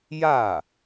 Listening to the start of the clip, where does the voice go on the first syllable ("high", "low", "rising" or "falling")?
falling